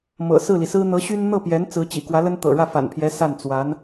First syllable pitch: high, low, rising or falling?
low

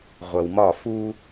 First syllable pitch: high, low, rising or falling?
low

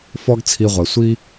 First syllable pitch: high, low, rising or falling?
high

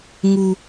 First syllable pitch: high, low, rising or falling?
low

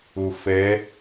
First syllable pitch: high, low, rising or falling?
low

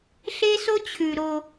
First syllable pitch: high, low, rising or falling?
high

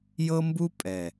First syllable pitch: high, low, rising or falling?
high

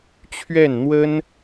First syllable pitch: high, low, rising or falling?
falling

